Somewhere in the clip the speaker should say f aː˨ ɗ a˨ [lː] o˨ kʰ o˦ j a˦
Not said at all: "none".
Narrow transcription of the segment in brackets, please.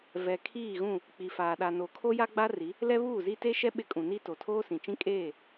n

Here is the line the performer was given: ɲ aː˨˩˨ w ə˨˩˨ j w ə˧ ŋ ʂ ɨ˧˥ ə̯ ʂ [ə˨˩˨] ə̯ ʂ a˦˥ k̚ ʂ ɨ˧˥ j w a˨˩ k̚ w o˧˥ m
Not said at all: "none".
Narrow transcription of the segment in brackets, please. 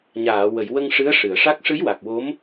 ɨ˨˩˨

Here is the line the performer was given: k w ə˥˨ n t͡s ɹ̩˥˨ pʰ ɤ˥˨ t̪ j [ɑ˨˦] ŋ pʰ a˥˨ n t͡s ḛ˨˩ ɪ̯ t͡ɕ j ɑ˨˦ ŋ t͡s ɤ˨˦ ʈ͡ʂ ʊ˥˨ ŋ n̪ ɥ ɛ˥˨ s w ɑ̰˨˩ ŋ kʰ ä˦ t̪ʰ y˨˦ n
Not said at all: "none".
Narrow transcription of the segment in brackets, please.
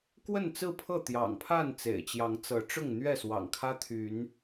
ɑ̰˨˩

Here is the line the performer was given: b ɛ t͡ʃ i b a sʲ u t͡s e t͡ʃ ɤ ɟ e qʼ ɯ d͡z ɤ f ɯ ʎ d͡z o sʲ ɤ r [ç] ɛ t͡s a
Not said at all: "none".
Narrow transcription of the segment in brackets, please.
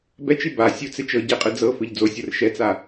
ʃ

